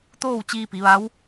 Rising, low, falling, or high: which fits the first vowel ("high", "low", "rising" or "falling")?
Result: falling